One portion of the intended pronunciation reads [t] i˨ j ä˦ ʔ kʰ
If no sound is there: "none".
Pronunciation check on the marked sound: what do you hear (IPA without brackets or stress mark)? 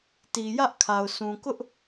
t